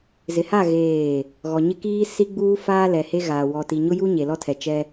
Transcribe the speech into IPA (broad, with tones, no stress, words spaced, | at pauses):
zɪ˨ha˦˨ ɣeː˦˨ | ɣɔ˨ɲɪ˦kiː˦ si˦ɡ͡buː˦faː˦ lɛ˨he˦ɣaː˨ wɔ˨ti˨ɲʊ˦ju˦ ɲe˨lɔ˦tʰɛ˨t͡ʃɛ˦